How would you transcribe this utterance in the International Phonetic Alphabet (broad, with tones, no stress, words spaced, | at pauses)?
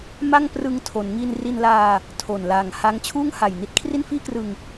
ma˥˩ŋ prɯ˧ŋtʰo˩˦nŋi˧n ri˧nlaː˧ | tʰo˨˩nlaː˨˩ŋha˦˥ŋ t͡ɕʰuː˥˩ŋha˨˩jni˥˩t̚kʰri˥˩n fiː˥˩krɯ˧ŋ